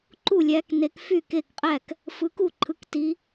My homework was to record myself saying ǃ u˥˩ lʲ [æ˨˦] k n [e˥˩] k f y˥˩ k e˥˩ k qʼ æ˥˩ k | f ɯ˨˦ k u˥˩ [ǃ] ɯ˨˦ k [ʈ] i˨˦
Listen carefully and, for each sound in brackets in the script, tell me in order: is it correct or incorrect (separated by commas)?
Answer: correct, incorrect, incorrect, incorrect